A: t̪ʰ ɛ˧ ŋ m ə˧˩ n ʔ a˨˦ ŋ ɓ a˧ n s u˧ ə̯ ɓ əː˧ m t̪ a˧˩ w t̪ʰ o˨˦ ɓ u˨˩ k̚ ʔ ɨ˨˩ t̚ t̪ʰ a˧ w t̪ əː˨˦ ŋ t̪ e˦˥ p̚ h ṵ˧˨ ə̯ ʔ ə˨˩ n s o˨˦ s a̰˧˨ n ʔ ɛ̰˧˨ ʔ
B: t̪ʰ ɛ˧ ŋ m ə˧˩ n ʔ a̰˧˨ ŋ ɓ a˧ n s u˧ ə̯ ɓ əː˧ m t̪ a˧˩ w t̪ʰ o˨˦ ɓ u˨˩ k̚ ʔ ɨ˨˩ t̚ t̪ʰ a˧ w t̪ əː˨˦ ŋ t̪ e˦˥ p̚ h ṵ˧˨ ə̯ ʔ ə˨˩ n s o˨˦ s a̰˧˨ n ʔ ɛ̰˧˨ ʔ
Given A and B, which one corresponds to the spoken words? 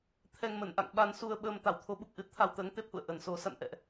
B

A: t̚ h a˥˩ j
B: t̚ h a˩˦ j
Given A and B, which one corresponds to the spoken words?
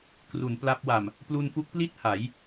B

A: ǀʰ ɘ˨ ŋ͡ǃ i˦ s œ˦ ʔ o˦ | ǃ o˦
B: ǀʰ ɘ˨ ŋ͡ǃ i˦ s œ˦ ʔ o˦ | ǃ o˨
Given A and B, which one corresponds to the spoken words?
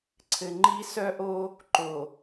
B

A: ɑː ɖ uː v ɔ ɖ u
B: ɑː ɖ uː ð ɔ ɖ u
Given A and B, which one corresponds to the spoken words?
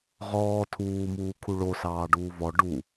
A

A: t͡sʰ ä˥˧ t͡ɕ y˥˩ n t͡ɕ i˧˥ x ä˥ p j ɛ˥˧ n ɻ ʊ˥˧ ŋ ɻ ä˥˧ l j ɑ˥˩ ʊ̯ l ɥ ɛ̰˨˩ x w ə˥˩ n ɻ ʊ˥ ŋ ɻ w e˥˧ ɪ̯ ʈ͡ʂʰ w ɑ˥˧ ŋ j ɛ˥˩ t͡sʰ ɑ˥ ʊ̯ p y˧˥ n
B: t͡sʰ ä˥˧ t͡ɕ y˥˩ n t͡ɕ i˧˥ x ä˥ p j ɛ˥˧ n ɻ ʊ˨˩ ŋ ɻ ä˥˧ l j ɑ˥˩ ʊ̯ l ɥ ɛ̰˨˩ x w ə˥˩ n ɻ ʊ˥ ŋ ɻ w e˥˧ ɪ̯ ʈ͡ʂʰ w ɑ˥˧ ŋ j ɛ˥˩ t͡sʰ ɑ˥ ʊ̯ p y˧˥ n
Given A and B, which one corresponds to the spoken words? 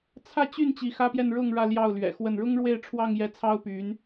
A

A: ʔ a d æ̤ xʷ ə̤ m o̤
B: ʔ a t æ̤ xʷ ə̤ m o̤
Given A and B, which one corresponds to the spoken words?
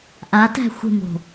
B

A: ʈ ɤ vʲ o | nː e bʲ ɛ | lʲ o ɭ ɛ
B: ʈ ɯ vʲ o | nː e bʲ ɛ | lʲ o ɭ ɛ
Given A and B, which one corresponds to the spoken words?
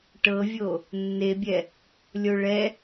A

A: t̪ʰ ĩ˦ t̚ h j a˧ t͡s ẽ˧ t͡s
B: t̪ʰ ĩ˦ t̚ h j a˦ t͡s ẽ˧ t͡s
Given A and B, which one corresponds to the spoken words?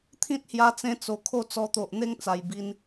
A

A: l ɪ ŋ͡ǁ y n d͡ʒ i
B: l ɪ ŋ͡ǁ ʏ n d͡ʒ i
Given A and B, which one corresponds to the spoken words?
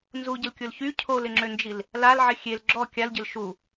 B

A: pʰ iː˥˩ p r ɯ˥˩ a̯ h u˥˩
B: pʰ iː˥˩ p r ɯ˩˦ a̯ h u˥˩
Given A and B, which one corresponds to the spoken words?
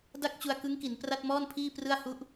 A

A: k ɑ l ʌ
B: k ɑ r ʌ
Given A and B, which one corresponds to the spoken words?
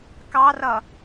B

